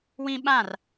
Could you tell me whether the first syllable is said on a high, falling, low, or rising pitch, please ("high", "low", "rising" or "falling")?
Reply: high